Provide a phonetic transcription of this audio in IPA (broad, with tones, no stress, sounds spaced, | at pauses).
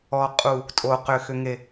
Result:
ɔ˨ qʼ u˨ | tʼ o˨ q ʏ˨ x ʏ˨ ŋ e˨